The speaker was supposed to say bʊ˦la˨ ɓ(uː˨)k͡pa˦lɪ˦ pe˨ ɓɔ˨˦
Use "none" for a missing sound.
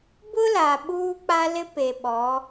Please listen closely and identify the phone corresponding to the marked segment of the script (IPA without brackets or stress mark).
uː˦